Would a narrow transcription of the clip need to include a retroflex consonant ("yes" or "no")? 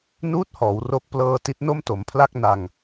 no